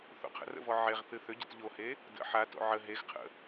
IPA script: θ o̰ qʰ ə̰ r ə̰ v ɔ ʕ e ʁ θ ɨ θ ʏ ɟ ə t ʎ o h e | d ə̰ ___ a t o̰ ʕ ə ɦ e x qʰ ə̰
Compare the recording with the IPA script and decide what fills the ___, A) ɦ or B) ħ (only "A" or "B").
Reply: B